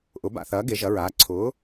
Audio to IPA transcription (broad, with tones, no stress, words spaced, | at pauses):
ʔʊ˨˥ba̰˧θɐː˨˥ ɡe˨˥ʒɐ˨˥ɹaː˨˥ ǀʰʊː˨˥